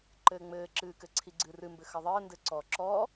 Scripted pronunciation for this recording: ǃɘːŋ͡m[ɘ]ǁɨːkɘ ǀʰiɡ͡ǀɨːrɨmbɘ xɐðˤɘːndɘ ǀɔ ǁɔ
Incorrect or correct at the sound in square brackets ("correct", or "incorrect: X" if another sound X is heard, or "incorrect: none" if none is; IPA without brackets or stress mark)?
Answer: incorrect: ɘː